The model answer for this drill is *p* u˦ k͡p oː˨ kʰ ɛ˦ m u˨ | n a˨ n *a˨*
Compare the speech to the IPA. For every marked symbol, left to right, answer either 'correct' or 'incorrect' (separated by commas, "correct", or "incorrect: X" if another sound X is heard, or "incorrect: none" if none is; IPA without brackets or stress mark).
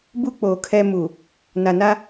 incorrect: b, incorrect: a˦